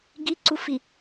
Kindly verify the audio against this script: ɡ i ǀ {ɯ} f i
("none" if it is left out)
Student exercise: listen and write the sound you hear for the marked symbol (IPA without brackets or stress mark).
u